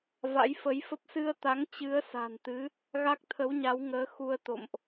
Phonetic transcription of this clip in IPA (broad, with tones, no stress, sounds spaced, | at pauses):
v a̰˧˥ j f ə˨˦ j f ə˦˥ p̚ s ɨ˧ ə̯ t̪ a˨˦ ŋ t͡ɕ ɨ˨˦ ə̯ s a̤˨˩ n t̪ ɨ˨˦ | ɣ a˦˥ k̚ t̪ʰ ə˨˦ w ɲ a˨˦ w ŋ əː˨˦ x u˧ ə̯ t̪ o̰˧˨ m ʔ